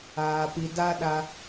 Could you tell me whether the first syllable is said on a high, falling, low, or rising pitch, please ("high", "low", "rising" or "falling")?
low